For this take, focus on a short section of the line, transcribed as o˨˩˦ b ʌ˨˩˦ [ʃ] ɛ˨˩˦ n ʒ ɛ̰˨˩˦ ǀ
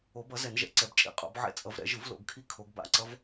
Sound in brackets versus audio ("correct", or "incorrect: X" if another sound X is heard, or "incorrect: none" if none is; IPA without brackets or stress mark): incorrect: z